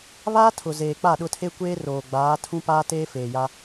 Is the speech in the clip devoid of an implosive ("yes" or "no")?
no